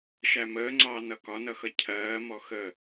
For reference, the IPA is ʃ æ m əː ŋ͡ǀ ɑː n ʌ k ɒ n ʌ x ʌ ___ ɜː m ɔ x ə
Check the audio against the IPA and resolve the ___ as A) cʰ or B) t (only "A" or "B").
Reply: A